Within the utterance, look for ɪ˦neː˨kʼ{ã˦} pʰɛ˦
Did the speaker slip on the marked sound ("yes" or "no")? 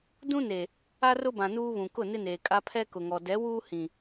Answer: yes